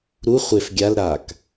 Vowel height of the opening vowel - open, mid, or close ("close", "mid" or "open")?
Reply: close